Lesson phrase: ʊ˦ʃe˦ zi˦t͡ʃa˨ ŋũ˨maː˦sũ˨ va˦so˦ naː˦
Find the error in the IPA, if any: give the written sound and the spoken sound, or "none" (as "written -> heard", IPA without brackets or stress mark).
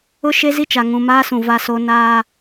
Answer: none